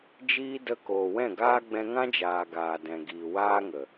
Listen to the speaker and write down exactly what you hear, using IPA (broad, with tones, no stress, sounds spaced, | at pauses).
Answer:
d͡ʒ iː˧ d ə˧ k oː˨ w ɛ̃˦˨ ɡ aː˦ ɡ͡b ɛ̃˧ ŋ ã˦ d͡ʒ aː˨ ɡ aː˨ d ɛ̃˨ ɡ iː˨ w aː˦ ŋ ə˨